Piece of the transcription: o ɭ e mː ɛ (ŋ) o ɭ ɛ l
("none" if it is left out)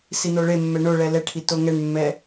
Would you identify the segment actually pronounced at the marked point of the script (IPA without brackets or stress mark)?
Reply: ɳ